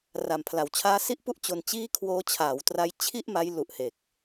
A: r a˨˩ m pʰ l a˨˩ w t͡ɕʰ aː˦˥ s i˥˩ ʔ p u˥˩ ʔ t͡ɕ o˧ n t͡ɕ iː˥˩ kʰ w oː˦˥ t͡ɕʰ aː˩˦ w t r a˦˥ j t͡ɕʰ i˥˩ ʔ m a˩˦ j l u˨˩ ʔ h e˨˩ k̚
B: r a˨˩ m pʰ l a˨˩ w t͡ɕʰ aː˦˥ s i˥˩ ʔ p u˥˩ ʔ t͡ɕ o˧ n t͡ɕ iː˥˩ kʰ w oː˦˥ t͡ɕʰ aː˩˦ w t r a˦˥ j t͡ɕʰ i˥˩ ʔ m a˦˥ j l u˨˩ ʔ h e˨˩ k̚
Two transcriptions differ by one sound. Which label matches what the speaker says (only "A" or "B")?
B